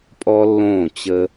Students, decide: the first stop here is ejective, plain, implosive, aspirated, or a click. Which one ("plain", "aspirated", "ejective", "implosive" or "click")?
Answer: ejective